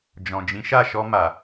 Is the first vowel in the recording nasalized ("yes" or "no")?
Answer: yes